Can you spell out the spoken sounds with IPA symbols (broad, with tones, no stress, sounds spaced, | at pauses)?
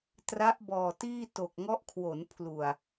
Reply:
t r a˦˥ ʔ b ɔː˨˩ t iː˥˩ t o˨˩ k̚ ŋ ɔ˦˥ ʔ kʰ w o˩˦ n pʰ l u˨˩ a̯